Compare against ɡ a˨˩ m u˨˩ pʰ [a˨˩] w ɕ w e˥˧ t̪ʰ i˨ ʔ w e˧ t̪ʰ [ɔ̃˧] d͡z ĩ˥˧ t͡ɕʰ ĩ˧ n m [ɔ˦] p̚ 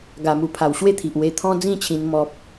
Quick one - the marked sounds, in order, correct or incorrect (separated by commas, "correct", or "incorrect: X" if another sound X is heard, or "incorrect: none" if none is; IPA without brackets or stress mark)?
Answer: correct, incorrect: ɔ̃˦, correct